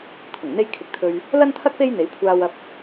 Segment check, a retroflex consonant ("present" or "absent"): absent